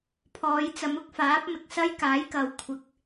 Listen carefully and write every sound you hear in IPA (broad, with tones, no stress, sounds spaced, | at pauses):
pʰ ɔː˨˧ j t͡s ɐ˨˧ m ʊ˨˥ k̚ f aː˨˥ p̚ m ɪ˨ k̚ s ɐ˥ j k aː˨˥ j k ɐ˨ w kʷʰ ɪ˨˥ k̚